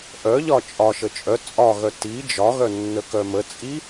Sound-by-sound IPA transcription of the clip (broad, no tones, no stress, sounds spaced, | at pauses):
ʔ œ ʎ ɒ t͡ʃʼ ɒ ʃ ə t͡ʃʼ œ t͡sʼ ɒ ɣ œ t i d͡ʒ ɒ ɣ œ nː ə k œ m ə t͡sʼ i